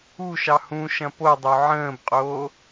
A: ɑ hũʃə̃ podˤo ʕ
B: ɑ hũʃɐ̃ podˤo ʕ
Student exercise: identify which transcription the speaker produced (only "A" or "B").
B